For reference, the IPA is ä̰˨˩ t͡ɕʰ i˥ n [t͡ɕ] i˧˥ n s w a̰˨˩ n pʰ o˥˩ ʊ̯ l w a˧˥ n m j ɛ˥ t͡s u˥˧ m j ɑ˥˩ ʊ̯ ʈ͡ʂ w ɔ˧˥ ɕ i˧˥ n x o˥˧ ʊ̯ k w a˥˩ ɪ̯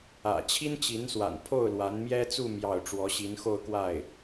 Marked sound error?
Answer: no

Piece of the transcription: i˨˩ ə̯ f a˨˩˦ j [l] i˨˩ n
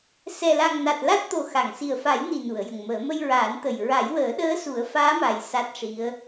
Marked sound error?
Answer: yes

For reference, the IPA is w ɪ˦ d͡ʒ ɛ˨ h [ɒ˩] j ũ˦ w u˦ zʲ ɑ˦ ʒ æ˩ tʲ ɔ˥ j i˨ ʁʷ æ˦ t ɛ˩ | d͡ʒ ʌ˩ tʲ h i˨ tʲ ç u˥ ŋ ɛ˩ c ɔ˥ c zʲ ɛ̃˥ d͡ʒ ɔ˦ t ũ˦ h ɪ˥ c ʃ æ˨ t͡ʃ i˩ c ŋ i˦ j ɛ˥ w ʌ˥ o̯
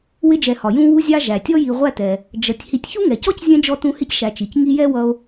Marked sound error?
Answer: no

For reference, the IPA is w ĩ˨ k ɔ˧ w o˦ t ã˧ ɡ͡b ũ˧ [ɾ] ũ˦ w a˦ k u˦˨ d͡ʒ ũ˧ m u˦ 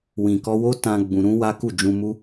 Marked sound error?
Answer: no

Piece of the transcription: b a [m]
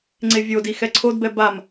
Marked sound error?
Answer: no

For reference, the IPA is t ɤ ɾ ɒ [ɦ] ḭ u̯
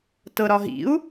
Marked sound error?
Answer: no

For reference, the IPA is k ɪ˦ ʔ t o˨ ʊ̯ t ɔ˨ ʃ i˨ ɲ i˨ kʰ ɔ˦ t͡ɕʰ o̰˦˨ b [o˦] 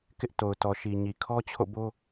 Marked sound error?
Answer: no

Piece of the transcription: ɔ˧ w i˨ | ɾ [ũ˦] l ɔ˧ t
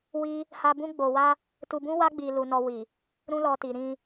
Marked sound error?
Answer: no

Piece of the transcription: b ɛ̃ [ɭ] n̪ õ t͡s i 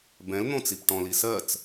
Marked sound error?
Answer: yes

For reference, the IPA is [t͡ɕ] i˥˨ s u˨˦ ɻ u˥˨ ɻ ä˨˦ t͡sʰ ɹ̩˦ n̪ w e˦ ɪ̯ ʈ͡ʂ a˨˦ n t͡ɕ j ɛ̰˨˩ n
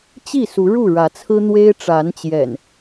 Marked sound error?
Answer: no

